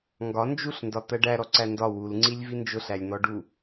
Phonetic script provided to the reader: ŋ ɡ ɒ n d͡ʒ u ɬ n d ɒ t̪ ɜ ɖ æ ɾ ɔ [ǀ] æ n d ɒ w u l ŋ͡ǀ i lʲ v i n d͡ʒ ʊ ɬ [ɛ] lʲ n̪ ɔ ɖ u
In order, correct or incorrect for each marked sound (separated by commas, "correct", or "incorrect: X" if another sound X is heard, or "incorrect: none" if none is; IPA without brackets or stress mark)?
correct, incorrect: æ